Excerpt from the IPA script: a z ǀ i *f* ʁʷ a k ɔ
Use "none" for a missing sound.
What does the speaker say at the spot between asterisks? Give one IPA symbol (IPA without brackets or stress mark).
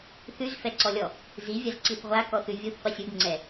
θ